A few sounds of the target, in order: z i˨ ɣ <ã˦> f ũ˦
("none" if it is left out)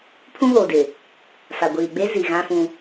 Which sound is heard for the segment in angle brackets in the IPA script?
ã˦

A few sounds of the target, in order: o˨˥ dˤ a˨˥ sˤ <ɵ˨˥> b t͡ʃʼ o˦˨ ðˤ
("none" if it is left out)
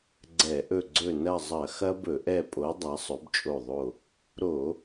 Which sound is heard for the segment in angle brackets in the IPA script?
ɵ˨˥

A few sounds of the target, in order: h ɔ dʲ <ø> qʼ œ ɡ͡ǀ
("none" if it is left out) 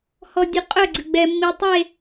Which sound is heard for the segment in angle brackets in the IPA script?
u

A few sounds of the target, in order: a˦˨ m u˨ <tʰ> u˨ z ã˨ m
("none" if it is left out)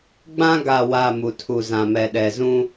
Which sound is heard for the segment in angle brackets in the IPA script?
tʰ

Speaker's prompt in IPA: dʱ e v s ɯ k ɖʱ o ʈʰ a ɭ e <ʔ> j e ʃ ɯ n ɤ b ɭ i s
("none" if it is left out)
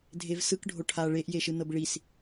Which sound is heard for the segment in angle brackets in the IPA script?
ʔ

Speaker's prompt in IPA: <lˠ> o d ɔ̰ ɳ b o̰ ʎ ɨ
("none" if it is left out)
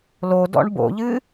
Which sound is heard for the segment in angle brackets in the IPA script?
l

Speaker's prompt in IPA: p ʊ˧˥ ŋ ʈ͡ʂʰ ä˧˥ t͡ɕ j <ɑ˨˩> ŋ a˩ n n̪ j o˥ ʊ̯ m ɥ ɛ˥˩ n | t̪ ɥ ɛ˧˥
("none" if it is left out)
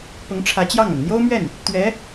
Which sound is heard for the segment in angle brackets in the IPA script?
ɑ˥˩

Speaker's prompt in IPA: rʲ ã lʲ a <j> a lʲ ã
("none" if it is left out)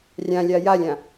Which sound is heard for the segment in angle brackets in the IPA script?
j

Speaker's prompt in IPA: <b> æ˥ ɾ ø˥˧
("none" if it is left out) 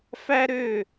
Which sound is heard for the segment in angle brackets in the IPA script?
f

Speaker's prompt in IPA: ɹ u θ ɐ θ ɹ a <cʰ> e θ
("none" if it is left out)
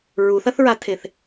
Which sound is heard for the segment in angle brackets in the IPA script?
tʰ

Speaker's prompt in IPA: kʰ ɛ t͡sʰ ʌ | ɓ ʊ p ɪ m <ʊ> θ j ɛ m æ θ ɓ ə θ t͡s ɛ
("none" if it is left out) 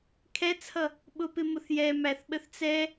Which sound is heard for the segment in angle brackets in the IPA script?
ʊ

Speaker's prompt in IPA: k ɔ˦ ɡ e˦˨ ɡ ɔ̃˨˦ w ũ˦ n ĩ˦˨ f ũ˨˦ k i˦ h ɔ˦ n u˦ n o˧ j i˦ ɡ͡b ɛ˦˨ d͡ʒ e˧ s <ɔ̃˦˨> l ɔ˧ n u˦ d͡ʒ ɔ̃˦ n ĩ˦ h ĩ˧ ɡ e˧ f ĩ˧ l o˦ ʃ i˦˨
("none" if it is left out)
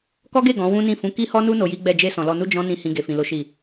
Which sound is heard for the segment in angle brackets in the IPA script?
ɔ̃˨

